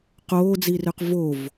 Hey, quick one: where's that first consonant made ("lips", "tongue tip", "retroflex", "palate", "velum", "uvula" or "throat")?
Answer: uvula